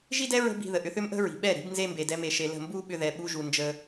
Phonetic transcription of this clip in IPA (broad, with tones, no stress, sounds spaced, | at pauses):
ʒ i˦ d ɛ˦ ɹ ə̤˦ b i̤˧ ð ə˨ ʔ ʏ˧ θ ʏ˦ m ʔ ə̤˦ ɹ i̤˨ ɓ ɛ˦˨ ɾ i̤˨˦ b n z e˧ m b e˨ d ɛ˦ m e˧ ʃ e˧ l ə̤˦˨ m b u˦ ɓ ʏ˧ ð ɛ˨ ɓ u˧ ʒ u˨ n d͡ʒ ə˧